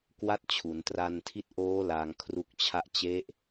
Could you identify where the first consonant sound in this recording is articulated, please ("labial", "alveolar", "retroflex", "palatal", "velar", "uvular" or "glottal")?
velar